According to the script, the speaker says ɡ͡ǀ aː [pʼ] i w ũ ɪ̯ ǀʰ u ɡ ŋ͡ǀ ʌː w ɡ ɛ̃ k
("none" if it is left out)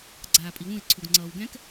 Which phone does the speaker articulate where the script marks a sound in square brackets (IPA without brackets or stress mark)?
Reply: pʼ